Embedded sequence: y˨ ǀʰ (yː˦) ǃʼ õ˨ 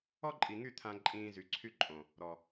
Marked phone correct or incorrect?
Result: incorrect